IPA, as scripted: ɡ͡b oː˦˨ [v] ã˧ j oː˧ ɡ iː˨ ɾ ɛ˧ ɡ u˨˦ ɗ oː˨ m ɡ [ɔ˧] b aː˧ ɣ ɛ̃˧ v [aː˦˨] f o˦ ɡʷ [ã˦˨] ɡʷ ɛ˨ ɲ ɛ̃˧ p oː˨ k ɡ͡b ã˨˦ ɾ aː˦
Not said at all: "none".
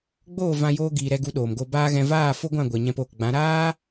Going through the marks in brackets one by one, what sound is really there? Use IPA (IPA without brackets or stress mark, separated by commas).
v, o˧, aː˦˨, ã˦˨